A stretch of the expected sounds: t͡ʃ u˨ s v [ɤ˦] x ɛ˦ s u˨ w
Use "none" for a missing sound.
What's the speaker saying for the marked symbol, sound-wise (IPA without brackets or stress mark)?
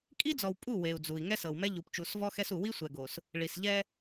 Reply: ɔ˦